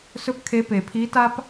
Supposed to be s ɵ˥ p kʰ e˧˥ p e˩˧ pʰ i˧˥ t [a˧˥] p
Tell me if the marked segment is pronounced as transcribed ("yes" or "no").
no